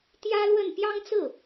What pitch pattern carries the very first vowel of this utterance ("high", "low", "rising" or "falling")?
high